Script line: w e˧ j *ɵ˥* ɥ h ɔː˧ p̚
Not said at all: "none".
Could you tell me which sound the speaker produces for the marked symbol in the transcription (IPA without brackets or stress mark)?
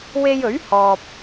ɵ˨˥